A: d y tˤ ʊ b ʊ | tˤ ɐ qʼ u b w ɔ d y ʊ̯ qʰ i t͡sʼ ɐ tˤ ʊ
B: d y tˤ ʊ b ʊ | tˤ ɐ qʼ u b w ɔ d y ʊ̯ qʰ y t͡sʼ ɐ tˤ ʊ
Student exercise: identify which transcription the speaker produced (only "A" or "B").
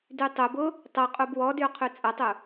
B